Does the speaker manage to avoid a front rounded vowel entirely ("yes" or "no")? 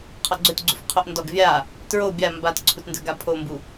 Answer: yes